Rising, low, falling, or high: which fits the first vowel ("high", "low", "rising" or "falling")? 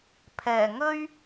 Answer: low